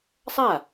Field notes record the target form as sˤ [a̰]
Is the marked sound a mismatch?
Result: yes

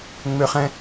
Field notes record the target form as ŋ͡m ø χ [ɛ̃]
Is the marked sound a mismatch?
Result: no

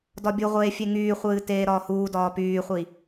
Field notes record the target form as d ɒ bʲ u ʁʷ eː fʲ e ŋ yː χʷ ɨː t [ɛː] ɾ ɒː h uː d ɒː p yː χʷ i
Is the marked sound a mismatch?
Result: yes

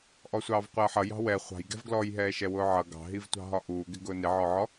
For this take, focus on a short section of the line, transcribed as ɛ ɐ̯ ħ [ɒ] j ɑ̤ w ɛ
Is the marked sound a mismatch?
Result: yes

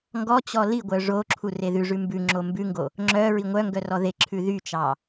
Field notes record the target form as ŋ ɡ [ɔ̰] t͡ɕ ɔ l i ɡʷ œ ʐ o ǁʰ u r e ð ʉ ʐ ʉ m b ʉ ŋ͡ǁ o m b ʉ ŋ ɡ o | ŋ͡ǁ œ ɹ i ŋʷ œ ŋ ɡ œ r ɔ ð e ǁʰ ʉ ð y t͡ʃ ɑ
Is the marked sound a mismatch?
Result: yes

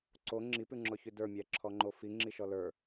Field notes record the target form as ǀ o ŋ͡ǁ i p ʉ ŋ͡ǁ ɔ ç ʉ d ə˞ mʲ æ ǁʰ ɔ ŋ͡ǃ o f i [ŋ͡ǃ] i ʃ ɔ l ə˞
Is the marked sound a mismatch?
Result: yes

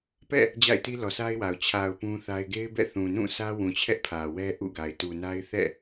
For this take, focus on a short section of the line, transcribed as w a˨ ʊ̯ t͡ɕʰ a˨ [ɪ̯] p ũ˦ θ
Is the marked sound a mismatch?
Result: yes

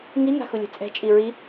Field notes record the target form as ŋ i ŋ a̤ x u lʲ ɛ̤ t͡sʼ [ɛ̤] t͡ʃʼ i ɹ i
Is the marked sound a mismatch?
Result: no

